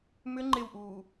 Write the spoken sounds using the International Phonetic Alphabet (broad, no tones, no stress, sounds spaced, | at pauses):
m ʏ ŋ͡ǃ ɪ w ʔ uː